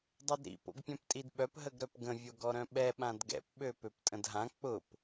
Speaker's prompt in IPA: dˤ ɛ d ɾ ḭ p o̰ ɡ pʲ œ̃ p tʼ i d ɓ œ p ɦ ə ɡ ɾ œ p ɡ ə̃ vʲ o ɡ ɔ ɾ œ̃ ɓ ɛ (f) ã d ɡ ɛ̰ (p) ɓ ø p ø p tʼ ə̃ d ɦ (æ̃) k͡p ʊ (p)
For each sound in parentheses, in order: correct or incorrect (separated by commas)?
incorrect, correct, incorrect, correct